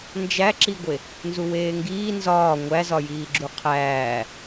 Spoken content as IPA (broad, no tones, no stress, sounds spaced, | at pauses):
n d͡ʒ æ ǁ i ɡʷ e | n z u w eː ŋ ɡ iː n z ɒː ŋʷ æ z ɒ j iː ɡ͡ǁ u qʰ æː